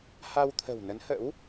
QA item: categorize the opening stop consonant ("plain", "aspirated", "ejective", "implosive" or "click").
aspirated